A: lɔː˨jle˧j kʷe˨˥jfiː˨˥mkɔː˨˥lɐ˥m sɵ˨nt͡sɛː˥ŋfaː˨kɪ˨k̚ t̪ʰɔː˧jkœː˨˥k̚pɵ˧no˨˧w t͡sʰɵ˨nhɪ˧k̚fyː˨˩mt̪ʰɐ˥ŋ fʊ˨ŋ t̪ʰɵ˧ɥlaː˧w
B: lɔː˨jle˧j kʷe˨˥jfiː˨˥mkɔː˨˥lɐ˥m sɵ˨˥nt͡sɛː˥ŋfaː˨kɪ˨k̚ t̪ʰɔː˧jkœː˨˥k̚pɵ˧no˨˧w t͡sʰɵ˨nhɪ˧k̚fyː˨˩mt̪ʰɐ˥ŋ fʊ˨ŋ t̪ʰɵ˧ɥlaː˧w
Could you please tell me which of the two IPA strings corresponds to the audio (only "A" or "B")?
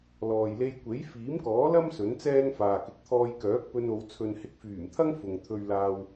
B